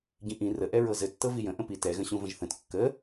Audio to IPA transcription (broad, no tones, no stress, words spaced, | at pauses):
ɟĩʔĩ rə ʔɛɹɤzɘtːɤ vijə̃ ʔə̃pi tɛɣə̃ɕũ və̃ʒθə̃t kːə